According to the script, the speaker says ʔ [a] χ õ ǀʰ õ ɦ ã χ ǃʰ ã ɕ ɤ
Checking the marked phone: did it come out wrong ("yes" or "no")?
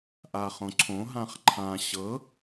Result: no